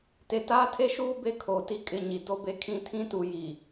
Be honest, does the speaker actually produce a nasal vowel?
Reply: yes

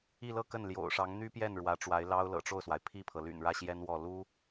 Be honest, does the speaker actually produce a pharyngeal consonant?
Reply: no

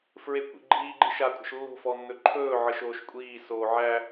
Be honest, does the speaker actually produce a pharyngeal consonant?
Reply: yes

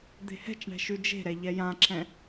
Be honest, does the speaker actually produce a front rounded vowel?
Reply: no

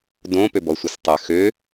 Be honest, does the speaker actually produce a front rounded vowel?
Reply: yes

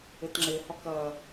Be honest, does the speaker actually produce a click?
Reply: yes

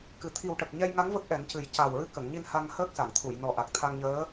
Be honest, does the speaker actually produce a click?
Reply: no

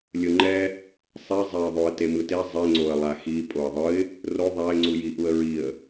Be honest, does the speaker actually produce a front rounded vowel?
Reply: no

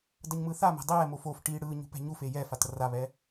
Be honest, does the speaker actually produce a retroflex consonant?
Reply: yes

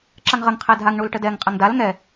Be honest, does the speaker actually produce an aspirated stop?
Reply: yes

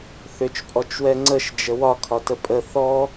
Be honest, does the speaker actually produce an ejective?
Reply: yes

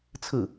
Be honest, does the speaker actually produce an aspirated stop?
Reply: yes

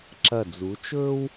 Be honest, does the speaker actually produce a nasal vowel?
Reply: no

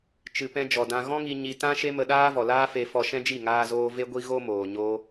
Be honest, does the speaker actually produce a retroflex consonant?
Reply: no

